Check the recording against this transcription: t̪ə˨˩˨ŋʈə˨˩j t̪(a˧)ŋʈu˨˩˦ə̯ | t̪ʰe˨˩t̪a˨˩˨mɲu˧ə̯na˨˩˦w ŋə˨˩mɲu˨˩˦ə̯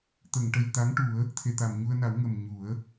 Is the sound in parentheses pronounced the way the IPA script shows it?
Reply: no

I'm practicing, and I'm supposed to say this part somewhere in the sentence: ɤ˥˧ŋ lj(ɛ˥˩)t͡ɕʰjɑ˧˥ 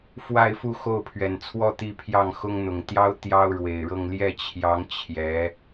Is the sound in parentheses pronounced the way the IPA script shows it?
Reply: yes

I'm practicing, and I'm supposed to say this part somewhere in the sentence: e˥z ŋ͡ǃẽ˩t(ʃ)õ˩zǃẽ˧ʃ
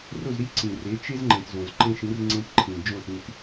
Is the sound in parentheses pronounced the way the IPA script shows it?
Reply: no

